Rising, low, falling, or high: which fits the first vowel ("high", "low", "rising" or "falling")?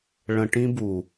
low